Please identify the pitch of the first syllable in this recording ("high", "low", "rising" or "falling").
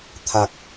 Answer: low